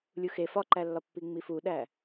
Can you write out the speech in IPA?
lʲ u x e f ɒ ǃ æ lː ɒ pː i ŋ͡m i f u ɗ æ

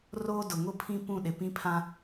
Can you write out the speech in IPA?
r oː˦ d ʊ˨ ŋ ʊ˦ pʰ ĩ˦ p ũ˦˨ ɗ ɪ˨ p ĩ˦ pʰ ã˦

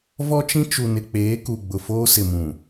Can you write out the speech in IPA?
v ɔ˦ t͡ʃ ĩ˦ t͡ʃ u˨ n ɪ˨ k͡p eː˨˦ k u˨ ɡ͡b ʊ˨ f oː˦ s ɪ˨ m ũ˨

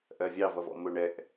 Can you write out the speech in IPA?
ʔ ɜ vʲ ɑ v ʌ v ɔ̰ m ʊ ɳ ɛ ʔ

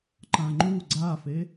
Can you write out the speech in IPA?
ǃ ã ŋ͡ǃ u ɡ͡ǀ a f e

